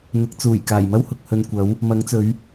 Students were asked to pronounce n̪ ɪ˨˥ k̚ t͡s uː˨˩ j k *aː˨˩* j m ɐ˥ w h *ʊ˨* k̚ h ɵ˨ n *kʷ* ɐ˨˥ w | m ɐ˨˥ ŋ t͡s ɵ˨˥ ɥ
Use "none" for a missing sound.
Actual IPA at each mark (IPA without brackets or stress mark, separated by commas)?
aː˨˩, ʊ˨, kʷ